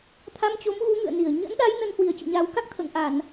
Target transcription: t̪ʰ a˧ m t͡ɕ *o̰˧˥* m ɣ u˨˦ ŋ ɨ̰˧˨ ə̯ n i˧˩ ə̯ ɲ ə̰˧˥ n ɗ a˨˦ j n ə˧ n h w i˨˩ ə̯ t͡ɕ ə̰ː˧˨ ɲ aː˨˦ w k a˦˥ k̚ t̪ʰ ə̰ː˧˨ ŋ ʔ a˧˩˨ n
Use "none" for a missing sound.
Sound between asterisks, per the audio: o˨˦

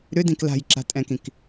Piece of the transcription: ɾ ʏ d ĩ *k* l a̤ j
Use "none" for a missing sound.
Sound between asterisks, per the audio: k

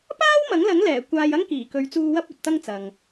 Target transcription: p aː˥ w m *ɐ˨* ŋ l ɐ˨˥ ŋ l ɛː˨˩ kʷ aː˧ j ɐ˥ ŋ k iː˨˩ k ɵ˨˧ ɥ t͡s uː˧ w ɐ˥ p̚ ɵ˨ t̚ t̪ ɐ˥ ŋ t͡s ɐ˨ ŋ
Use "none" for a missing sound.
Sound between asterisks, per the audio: ɐ˨˥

